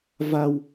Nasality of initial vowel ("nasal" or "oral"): oral